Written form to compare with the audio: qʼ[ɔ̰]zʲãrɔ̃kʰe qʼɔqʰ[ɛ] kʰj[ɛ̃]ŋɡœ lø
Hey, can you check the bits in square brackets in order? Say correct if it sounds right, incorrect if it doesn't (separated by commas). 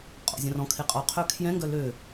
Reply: correct, incorrect, correct